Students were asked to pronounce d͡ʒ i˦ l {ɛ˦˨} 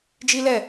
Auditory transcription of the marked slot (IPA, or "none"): ɛ˦˨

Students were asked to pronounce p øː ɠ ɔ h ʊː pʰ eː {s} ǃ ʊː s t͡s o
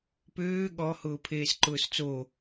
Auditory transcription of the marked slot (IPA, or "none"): s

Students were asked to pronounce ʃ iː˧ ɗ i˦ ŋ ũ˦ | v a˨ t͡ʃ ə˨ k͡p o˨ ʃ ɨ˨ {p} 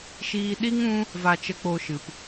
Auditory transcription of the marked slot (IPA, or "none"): p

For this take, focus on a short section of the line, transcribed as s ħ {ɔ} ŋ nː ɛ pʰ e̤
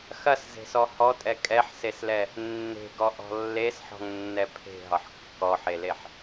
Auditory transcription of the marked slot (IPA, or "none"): ɔ̤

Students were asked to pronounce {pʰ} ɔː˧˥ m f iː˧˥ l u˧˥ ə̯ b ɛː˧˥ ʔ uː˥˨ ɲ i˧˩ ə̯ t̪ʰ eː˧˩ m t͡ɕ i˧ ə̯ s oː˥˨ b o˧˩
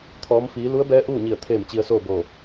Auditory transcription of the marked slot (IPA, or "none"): t̪ʰ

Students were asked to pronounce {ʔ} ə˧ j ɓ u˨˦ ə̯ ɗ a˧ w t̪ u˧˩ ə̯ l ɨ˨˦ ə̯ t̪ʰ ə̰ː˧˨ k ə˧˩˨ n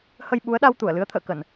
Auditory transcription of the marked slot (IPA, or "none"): h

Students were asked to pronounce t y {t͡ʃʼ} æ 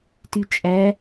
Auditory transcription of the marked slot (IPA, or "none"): t͡ʃʼ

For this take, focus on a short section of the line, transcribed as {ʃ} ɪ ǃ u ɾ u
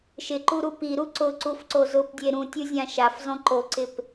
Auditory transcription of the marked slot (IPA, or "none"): ʃ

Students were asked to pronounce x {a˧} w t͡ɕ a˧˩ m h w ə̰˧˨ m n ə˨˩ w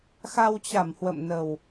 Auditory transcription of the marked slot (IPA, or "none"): a˧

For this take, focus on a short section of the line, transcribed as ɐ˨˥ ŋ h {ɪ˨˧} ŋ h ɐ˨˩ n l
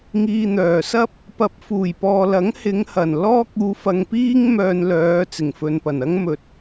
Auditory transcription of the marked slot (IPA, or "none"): ɪ˨˧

